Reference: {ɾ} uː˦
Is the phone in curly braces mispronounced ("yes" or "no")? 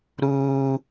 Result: no